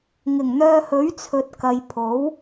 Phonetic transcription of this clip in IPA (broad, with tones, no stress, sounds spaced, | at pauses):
ŋ ɪ˨˩ ŋ n̪ œː˧ h ɵ˨˥ ɥ t͡sʰ ɵ˨ t̚ k ɐ˨ j pʰ o˨˥ w